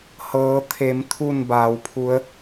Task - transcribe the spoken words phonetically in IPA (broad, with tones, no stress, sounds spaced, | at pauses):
h ɤː˩˧ t̪ʰ e˩˧ m t̪ʰ u˧˩ n b aː˩˧ w pʰ u˧˥ ə̯